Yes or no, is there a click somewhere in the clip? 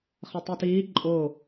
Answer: yes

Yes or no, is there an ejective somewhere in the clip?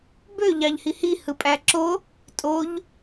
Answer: yes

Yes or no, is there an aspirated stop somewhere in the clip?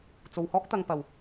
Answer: no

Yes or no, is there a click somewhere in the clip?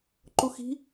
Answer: yes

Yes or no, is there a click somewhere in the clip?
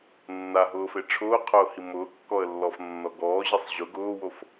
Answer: no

